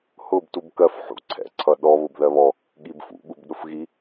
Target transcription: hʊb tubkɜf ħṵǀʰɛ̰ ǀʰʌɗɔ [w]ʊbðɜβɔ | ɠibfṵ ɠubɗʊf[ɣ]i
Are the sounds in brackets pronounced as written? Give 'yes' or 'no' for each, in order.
no, yes

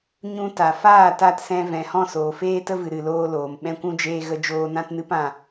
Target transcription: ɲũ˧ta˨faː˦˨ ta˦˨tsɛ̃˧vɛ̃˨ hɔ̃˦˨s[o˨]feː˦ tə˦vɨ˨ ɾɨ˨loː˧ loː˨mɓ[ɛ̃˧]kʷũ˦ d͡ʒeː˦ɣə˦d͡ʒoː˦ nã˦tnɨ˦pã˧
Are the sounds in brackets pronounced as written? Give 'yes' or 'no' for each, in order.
no, no

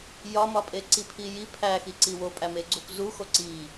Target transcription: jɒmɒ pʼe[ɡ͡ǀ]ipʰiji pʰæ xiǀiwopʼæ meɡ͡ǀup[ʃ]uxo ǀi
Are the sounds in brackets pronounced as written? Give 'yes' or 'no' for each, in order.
no, no

